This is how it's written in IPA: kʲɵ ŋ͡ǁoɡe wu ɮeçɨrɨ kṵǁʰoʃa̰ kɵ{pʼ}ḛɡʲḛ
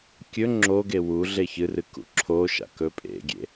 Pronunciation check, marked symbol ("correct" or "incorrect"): correct